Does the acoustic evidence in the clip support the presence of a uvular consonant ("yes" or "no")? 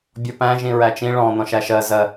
no